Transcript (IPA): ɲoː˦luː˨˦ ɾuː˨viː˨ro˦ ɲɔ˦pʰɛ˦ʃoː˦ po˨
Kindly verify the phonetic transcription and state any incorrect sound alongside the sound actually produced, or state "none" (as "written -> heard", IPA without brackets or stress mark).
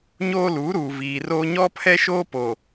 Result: none